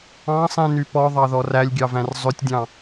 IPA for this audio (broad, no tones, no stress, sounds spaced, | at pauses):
ɑ̃ sˤ ĩ n y p ɔ ðˤ ɑ ð ɔ r æ lʲ ɡʲ ɑ v æ̃ r zˤ ø tʲ dʲ ɑ̃